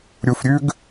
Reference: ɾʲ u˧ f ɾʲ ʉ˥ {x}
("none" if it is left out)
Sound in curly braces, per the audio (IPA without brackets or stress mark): ɡ